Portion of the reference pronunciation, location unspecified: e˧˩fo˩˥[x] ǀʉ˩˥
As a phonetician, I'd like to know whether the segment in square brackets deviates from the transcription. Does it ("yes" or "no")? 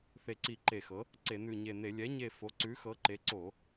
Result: yes